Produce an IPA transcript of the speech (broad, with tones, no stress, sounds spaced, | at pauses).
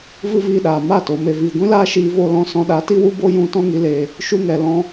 v ɨ˦ v iː˧ ɗ aː˨ m a˦˨ t o˨ m e˨ v iː˨ ɡʷ ĩ˦ l aː˦ ʃ iː˧ v o˧ l ɔ̃˧ s ɔ̃˧ ɗ a˨˦ t i˦ w u˦ b o˦ j ũ˧ t ɔ̃˦ ŋ i˨˦ l eː˧ | ʃ u˧ ŋ ɛ˨ l ɔ̃˦